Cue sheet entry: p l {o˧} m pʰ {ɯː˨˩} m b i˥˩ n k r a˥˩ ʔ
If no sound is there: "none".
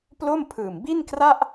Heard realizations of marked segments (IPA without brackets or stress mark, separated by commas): o˥˩, ɯː˨˩